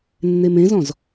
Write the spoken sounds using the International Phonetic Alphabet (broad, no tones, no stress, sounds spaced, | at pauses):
nː e m ẽ z ɔ̃ z